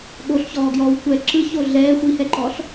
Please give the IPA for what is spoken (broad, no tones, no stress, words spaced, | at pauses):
ɠoɬçɔːɡjɔːw kʷɛ ǁɯço ɮɛː xʷihɛǃɔɬ